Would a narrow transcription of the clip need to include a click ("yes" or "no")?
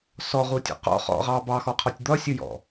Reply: no